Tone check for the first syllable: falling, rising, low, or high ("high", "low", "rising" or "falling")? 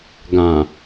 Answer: low